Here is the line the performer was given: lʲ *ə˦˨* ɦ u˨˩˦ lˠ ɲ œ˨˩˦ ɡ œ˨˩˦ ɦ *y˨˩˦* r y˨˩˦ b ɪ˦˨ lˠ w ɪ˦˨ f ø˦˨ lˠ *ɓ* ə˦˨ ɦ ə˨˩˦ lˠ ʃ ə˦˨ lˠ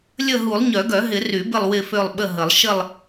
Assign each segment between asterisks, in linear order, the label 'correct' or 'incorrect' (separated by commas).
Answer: correct, incorrect, correct